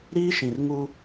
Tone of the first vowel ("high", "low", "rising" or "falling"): high